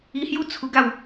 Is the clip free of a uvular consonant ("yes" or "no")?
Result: yes